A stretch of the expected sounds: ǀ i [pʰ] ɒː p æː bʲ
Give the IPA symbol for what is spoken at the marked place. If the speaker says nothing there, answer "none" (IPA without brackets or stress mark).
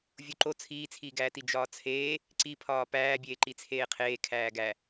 pʰ